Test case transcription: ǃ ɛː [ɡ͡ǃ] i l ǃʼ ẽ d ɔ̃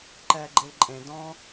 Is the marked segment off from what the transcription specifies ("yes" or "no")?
no